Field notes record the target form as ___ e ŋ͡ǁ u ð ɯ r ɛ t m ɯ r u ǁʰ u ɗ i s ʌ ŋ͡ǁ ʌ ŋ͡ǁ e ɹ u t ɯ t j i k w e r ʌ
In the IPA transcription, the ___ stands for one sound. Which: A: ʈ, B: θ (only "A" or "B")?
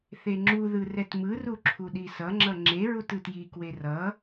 B